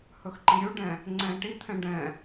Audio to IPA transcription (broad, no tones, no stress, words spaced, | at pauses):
hɵxǃiɾʲuɖɛ̃ | ŋ͡ǀɛ̃ʈit̪ʰɛ̃ ɖɛ̃